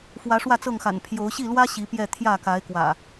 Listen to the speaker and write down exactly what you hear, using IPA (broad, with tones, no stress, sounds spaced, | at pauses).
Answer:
f w ä˨˦ ʂ w ä˥˨ t͡s ɤ˥˨ ŋ x a̰˨˩ n pʰ j o˨˦ ʊ̯ ɕ i˥˨ l w ä˦ ɕ i˨˦ p j ɛ˥˨ t̪ʰ j ä˥˨ k a˨˦ ɪ̯ k w ä̰˨˩